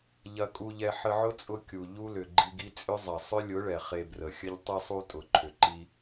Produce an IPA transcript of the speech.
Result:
ʎ ɐ˧ kʼ u˧ ʎ ɛ˧ ħ ə˧ ʕ ʊ˦ t͡sʼ ʊ˧ kʲ u˨ ʎ u˦ l ʏ˨ ɡ͡ǃ i˧ ɡ i˦ t͡sʼ ʏ˦ zˤ ɐ˨ sˤ ʏ˦ lʲ ʊ˨˦ ɭ ɛ˨ χ e˧ b r ə˨ xʲ ə˧ ʎ tˤ i˧ sˤ u˧ tʼ ʊ˨ ǃʰ ʏ˨ ǃ i˧

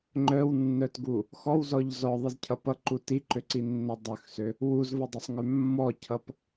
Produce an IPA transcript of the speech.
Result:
ŋ͡ǃ œ w nː œ t ɡ u | x ɔ w z ɔ ʎ z ɔ ðˤ i z cʰ ʌ p ʌ ǃ u t i ǃ ø ǀ i nː œ dˤ ø x s ø | w u z v ʌ dˤ ʌ sˤ ŋ ø mː ɔ cʰ ʌ p

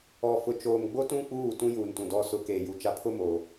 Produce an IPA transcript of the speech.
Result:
ɔ˨ f ʊ˨ t͡ʃ oː˨ m ɡ͡b o˦ t ũ˦ k͡p uː˦˨ t ũ˦ j uː˨ n t ũ˨ d ɔ˦ s ʊ˦ k eː˨ j u˨ t͡ʃ a˦ pʰ ʊ˦ m o˨

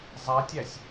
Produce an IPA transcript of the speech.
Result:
zˤ æ tʲ æ sʲ

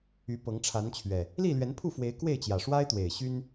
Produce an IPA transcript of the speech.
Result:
y˨˦ p ɤ˨˦ ŋ ʈ͡ʂʰ a˨˦ n t͡ɕʰ ɥ ɛ˨˩ | l i˥˨ l ɥ ɛ˨˦ n pʰ u˥˨ f w e˨˦ ɪ̯ k w e˥˨ ɪ̯ t͡ɕ j ä˨˩ ʂ w a˦ ɪ̯ t̪ w e˨˩ ɪ̯ ɕ y˦ n

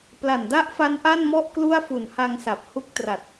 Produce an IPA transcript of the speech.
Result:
p l a˨˩ n d a˥˩ ʔ f a˦˥ n ʔ a˥˩ n m ɔ˥˩ ʔ k l u˥˩ a̯ f u˨˩ n h a˧ ŋ s a˨˩ p̚ h u˥˩ k̚ t r a˨˩ t̚

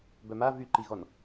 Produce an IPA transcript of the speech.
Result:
b œ m a v y ǃ i ɣ ɔ n

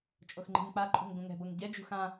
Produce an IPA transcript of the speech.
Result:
t͡ʃʼ o x ŋ͡ǃ i̤ ŋ k͡p a ǃʼ ṳ ŋ ɡ ũ ŋ ɛ̤ b ɤ ŋ ɟ ɛ d͡ʒ ṳ x ã

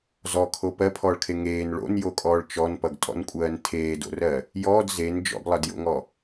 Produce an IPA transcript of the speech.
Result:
z ɔ kʰ o p ɜ pʰ ɔː ɭ kʰ e ŋ eː n ɭ o̰ n j o kʼ ɔː ɭ t͡ʃ ɔ n p ʌ ɡ tʼ ɔ̰ n kʷʼ ɜː n tʰ eː d o̰ r ɜ | j ɔː d z e n d͡ʒ ɔ̰ ɡ lˠ ʌ d j o̰ ŋ ɔ

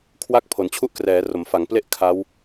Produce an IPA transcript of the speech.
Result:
kʰ w a˥˩ k̚ pʰ o˩˦ n t͡ɕʰ u˥˩ ʔ k r ɛː˩˦ r o˩˦ m f a˩˦ ŋ p l e˥˩ ʔ kʰ a˦˥ w

